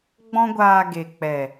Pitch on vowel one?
high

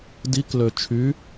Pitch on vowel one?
rising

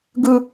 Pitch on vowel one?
high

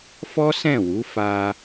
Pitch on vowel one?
high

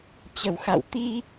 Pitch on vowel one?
low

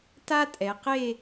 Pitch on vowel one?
high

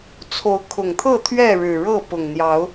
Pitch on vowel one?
rising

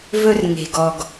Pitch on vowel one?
high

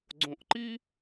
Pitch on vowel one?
low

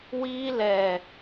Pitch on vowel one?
high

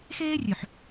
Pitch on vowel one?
high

